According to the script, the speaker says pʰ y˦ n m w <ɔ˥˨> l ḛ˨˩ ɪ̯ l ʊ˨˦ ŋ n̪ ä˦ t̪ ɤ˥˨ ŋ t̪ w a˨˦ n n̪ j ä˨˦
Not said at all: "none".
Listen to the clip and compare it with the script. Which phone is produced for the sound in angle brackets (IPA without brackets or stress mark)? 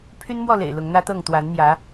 ɔ˥˨